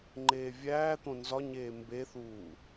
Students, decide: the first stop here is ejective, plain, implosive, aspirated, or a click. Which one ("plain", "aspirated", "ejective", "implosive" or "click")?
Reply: click